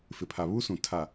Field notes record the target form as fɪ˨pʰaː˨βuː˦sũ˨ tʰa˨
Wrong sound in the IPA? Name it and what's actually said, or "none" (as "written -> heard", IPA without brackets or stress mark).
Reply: aː˨ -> a˨